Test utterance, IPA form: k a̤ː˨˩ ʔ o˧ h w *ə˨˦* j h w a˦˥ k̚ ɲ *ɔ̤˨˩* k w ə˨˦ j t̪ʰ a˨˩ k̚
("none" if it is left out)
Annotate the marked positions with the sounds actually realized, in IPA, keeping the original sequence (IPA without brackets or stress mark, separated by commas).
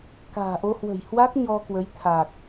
ə̤˨˩, ɔ˧